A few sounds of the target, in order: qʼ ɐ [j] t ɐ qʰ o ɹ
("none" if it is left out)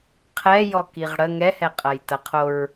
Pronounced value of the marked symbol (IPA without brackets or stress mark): j